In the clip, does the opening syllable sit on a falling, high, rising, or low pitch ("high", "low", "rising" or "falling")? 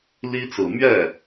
high